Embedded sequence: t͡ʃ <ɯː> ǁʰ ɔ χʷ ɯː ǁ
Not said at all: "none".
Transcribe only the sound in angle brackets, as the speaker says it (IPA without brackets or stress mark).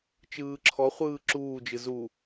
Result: ɯː